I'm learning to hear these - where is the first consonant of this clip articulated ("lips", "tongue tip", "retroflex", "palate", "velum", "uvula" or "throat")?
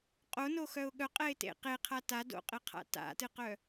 uvula